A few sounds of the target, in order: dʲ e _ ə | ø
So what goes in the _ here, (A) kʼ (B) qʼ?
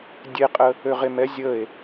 B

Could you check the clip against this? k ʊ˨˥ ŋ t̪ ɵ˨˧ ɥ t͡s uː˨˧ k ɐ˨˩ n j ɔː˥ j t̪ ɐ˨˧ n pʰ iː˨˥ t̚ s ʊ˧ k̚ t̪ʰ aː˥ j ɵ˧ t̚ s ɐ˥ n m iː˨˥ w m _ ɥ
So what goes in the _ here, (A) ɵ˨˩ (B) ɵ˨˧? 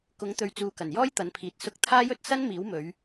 B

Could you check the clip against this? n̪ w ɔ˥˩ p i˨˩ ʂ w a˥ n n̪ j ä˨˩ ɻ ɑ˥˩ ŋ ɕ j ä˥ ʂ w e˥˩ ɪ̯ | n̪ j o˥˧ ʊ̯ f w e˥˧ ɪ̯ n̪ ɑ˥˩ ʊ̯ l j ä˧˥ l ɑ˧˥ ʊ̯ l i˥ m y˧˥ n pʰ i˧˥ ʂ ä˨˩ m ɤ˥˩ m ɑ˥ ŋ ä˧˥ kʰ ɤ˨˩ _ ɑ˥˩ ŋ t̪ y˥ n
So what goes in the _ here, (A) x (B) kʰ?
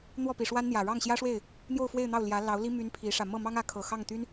A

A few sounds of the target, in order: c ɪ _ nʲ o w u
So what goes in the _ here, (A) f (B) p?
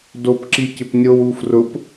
B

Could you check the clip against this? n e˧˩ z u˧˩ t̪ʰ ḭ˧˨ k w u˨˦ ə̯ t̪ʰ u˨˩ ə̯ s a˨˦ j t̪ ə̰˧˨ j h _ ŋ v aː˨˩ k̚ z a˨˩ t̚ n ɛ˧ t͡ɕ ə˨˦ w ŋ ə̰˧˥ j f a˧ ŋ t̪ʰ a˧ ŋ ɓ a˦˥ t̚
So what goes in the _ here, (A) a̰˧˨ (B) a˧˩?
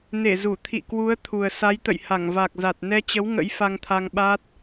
B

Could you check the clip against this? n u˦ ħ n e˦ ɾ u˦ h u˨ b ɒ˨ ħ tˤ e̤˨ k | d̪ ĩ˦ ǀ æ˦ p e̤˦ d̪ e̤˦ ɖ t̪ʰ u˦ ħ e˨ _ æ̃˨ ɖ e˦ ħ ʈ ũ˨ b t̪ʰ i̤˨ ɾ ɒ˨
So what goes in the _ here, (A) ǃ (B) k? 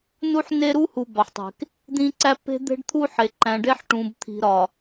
A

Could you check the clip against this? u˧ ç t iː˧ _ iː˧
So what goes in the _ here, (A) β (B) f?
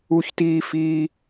B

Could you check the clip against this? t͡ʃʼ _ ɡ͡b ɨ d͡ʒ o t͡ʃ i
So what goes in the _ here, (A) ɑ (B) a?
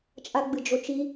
B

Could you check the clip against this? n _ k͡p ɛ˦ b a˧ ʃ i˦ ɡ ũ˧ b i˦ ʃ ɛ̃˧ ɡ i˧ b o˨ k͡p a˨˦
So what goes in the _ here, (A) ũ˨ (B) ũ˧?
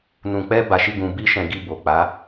B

